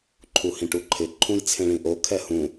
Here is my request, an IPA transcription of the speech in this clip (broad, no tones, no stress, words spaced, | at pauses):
ǃʰuhĩʈuǃʰɪ ǃʰũjt͡sʰẽɭĩʔo kʰɛhũ